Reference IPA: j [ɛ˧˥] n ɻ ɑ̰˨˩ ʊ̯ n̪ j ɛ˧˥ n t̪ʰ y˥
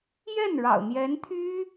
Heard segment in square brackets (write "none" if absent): ɛ˥˩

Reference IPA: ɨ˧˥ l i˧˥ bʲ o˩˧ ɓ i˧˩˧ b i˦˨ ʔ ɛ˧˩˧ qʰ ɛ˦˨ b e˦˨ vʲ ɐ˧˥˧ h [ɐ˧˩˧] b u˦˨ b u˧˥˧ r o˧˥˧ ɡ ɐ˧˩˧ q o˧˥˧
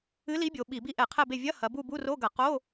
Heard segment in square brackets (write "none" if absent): ɐ˩˧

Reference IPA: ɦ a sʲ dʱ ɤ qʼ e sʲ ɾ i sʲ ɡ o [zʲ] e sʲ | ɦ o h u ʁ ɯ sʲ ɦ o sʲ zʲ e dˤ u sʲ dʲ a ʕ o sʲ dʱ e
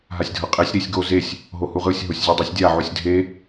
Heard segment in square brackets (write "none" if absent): z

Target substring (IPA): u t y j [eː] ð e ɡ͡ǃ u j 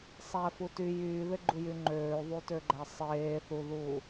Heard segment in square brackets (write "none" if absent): yː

